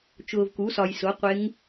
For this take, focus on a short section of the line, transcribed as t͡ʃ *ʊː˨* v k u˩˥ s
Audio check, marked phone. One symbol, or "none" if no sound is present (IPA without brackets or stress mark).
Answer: ʊː˨